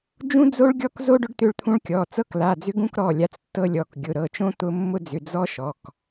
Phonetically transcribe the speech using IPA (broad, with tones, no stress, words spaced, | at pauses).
d͡ʒũ˦d͡zo˦ɭɡʲɔ˦kzo˦ ɖʏ˦ɖt̪ʏ˦ɭt̪ʰũ˦ɭkʲɔ˩˧˩ t͡sɤ˦kla˩˧˩d͡zʏ˦ ɡũ˦kɾɔ˩˧˩ lʲa˦t͡stːɤ˦lʲɔ˩˧˩k ɡʲʊ˩˧˩ɾɤ˩˧˩t͡ʃõ˦ t̪ʊ˦ mːʊ˦d͡zʏ˩˧˩ d͡zɔ˦ʃɔ˩˧˩k